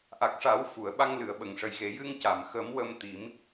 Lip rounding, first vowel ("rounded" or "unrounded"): unrounded